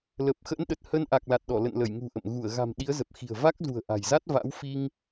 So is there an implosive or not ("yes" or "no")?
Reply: yes